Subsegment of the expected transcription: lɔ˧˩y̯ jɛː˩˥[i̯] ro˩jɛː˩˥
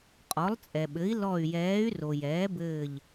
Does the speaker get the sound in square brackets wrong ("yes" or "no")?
yes